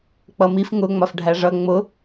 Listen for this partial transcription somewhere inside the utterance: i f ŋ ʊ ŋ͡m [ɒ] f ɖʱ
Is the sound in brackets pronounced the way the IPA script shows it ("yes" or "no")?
yes